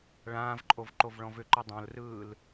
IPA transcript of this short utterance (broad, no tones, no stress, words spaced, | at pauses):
ɭãːvǃʼov ǃovɭɔ̃vʏǃɯ dˤõlrɯːl